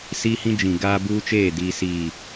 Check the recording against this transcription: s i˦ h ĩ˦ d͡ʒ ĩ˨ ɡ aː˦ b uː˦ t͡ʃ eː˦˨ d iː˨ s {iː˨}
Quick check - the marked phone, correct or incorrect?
correct